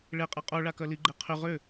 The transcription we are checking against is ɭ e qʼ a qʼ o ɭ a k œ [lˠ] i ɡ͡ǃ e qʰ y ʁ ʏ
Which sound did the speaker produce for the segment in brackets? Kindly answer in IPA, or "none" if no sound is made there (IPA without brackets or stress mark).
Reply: l